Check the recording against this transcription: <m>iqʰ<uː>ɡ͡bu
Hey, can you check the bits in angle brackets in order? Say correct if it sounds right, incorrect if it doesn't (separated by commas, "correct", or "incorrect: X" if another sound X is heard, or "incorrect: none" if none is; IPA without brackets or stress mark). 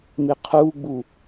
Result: correct, correct